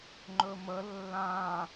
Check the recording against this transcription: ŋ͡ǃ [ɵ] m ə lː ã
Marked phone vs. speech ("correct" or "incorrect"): correct